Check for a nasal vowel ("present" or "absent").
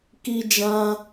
present